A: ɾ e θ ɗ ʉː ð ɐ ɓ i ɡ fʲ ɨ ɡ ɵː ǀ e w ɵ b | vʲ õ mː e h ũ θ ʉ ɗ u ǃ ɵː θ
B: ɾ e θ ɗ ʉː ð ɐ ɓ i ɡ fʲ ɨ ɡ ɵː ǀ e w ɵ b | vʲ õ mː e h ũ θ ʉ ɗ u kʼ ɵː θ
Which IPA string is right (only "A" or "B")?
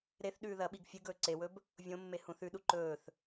A